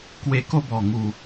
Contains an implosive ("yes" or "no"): no